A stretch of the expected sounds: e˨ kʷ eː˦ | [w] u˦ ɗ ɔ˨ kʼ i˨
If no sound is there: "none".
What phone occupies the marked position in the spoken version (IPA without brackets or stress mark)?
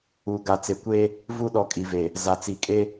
v